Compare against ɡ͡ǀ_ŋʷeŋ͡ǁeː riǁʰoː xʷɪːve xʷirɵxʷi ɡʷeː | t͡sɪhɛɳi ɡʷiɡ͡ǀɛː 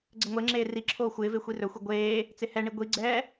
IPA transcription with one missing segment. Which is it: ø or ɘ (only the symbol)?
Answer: ɘ